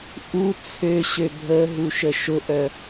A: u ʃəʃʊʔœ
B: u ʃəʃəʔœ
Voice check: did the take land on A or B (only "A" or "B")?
A